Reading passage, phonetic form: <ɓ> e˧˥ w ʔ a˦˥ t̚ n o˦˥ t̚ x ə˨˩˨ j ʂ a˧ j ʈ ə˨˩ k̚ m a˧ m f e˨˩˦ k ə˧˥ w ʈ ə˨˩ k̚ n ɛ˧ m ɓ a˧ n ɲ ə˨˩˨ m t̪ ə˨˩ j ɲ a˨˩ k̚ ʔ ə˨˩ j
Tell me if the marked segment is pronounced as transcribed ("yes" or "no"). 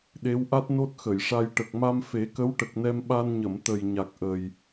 no